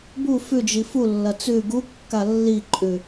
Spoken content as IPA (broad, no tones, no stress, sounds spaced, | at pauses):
b u f ʉ d͡ʒ i f u lː ɐ t͡s ʉ ɡ u kː a lː i ǃʼ ʉ